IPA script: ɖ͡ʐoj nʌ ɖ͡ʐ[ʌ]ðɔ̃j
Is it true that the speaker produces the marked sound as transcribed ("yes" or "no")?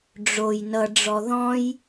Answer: no